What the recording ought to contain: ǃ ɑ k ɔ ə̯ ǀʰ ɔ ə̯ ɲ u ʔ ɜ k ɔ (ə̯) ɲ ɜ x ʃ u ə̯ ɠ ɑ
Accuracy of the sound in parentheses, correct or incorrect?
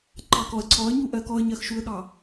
correct